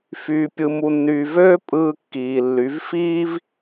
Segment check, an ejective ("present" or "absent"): present